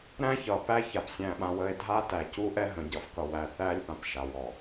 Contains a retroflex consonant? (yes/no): no